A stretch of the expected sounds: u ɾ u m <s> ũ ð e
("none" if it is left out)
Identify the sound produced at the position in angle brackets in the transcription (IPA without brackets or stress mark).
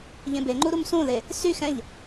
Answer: s